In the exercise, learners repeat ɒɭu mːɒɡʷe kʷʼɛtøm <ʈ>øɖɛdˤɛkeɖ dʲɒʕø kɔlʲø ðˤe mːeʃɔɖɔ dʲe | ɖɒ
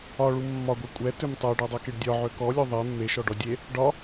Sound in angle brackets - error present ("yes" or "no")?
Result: yes